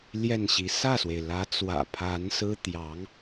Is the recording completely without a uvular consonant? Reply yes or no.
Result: yes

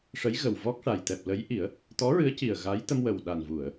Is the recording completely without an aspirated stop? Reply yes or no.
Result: yes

